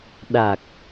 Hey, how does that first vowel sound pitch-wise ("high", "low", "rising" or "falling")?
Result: low